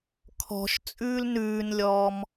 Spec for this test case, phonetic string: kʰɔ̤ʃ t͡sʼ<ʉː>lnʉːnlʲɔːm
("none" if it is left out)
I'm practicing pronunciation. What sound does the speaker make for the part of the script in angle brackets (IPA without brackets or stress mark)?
ʉː